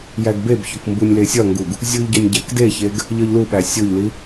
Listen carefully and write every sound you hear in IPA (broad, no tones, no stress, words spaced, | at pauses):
jæɡbebçok mbunʲlesʲɒŋɡuɡ | zʲuʎ ɟɒnʲɟækdeçeɡ | ʎɒʎluɓæ sʲoʎli